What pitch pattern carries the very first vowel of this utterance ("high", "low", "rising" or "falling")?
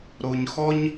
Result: low